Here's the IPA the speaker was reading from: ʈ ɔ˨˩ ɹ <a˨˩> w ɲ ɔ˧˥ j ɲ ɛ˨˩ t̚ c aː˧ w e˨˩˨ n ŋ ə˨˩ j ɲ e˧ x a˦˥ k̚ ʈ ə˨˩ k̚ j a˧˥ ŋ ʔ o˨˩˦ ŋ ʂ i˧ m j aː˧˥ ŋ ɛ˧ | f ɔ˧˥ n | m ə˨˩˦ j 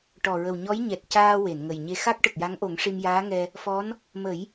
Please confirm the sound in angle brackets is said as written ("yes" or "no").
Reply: no